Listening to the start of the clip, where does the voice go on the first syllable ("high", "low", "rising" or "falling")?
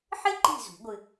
high